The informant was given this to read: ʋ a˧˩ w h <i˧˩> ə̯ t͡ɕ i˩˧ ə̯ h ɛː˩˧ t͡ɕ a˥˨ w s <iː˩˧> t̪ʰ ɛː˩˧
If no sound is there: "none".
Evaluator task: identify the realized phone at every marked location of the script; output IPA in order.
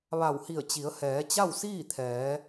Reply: i˧˩, iː˥˨

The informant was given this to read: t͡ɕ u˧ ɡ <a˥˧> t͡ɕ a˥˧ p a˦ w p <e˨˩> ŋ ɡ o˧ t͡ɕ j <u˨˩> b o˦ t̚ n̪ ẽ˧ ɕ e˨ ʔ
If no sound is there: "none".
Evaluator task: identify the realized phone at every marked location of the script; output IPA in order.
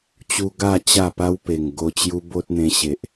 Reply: a˥˧, e˨˩, u˦

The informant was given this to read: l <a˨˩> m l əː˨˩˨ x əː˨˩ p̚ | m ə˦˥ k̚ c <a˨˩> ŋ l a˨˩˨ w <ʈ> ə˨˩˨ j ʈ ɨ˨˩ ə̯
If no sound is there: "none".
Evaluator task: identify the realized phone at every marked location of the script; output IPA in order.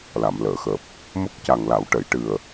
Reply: a˨˩˨, a˨˩, ʈ

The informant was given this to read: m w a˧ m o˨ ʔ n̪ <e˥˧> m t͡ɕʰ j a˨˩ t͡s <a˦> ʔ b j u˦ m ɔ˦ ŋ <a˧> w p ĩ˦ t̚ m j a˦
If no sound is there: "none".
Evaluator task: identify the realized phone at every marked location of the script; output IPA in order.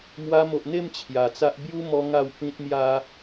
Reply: e˥˧, a˦, a˥˧

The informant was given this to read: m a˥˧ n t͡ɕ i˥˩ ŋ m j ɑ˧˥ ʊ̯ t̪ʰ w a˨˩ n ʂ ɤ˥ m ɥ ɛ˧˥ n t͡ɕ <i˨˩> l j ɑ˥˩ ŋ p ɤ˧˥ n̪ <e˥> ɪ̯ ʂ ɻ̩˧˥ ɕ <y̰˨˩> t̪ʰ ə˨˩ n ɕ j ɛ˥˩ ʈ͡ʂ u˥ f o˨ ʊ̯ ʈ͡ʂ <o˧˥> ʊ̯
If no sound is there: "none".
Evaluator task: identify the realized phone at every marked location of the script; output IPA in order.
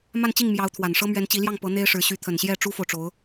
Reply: i˧˥, e˥, y˧˥, o˧˥

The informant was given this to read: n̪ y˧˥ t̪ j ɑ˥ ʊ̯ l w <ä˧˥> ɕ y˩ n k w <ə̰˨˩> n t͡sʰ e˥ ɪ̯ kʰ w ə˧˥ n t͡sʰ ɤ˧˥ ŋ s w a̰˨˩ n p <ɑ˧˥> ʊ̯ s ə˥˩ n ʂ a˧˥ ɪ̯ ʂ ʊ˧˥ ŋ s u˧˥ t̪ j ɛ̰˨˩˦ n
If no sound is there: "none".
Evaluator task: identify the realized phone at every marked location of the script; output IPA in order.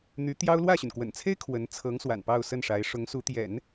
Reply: ä˥˩, ə̰˨˩, ɑ˥˧

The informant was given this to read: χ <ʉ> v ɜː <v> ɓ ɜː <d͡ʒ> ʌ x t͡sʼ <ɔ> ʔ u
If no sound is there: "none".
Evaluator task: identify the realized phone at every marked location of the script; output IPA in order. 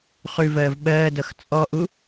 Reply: ʉ, v, d, ɔ

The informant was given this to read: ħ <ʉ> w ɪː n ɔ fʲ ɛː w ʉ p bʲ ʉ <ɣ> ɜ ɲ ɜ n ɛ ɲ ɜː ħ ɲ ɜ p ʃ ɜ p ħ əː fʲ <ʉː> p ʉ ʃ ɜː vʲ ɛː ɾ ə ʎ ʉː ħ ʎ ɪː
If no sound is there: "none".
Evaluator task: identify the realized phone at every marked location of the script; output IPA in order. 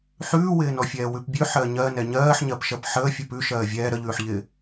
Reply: ʉː, ħ, ʉ

